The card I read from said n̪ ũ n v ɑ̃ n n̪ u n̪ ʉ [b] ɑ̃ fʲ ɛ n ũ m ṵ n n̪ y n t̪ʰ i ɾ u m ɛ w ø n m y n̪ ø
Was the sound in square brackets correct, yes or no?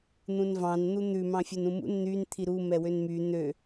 no